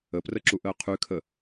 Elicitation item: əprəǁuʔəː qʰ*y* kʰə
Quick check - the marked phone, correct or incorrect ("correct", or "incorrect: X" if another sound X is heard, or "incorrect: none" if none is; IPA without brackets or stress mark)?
correct